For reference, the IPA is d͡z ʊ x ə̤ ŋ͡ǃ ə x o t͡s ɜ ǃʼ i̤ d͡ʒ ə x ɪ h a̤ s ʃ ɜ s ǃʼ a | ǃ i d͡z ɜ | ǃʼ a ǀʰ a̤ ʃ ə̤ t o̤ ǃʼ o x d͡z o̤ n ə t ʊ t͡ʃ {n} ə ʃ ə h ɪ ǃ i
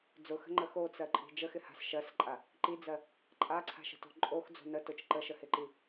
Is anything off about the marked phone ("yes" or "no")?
yes